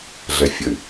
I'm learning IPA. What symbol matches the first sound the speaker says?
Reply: ɮ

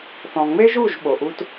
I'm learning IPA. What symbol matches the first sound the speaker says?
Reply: θ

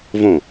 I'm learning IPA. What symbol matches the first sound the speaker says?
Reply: v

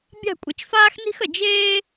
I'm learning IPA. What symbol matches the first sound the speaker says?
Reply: bʲ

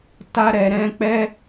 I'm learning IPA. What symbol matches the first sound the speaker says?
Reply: t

